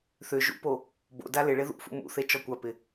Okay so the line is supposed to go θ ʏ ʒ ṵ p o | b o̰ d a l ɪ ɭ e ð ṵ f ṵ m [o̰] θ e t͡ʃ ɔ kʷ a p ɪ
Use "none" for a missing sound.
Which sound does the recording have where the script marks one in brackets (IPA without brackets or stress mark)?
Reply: ṵ